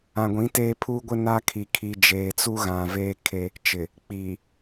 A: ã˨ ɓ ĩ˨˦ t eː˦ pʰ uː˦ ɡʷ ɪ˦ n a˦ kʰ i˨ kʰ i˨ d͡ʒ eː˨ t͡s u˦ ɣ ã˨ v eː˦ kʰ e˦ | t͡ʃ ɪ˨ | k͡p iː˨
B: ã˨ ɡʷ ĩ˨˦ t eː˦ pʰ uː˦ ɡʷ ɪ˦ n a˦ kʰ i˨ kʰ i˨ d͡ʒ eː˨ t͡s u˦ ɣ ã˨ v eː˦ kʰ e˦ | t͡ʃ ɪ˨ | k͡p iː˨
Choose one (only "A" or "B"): B